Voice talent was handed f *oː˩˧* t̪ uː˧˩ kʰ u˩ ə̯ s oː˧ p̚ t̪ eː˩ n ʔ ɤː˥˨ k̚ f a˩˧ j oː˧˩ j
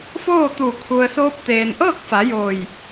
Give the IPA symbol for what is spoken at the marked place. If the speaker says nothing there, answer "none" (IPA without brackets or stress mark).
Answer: oː˥˨